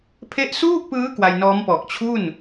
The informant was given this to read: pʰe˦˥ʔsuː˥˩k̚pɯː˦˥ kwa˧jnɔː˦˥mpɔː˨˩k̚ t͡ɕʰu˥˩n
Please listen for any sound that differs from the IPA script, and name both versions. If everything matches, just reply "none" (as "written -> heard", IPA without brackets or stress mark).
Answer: none